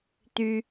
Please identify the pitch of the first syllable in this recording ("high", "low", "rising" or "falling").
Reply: high